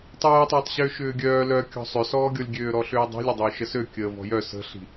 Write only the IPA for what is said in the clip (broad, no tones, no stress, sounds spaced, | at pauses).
tˤ œː tˤ ʏː tˤ ɕ ʏː ʃ ʏː ɡʲ œː l œ kʲ ɔ̤ sˤ ʏ s ɔː ɡʲ ɔ lʲ ɡʲ øː ɾ ɔ ɬ ʏː dˤ i̤ lʲ ʏ dˤ ʏː ʃ ə s ø kʲ əː v ɔ̤ j œ s ə̤ ɬ i̤